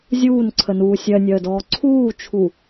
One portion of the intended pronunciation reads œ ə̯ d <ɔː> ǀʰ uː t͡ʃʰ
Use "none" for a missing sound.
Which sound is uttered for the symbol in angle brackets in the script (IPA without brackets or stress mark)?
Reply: ɔː